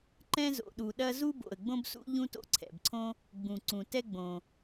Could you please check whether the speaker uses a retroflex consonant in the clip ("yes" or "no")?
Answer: no